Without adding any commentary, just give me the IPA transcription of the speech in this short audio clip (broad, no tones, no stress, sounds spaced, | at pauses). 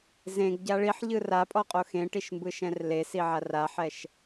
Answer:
z ẽ ɡ ɟ a ɭ i ħ ʎ ɯ r a pʼ ɔ qʼ o x ẽ ʈ i ʃ m b ɯ ʃ ɛ̃ r l e s i ʕ a r a ħ ɛ ʃ